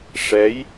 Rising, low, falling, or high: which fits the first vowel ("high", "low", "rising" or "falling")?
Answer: rising